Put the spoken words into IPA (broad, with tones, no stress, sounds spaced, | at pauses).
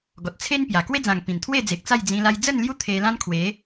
ɡ ɔ˨ t̚ t͡sʰ e˦ n p j a˨˩ k w e˦ d͡z ã˨˩ ŋ p ĩ˨˩ n t̪ʰ w e˥˧ d͡z e˨ k̚ t͡s a˥˧ j d͡z ĩ˧ l a˧ j d͡z ə˥˧ n l j u˦ t̪ʰ e˧ l ã˦ n kʰ w e˨˦